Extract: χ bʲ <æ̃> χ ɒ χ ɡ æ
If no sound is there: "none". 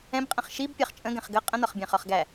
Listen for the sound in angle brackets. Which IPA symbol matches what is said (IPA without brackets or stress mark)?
æ̃